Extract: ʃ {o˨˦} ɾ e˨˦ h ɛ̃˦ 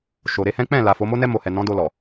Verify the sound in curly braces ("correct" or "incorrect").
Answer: incorrect